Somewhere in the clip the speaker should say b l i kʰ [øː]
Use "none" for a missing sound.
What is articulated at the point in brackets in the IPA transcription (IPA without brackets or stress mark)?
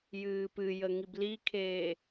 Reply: eː